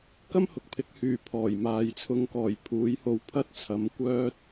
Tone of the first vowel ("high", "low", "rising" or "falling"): high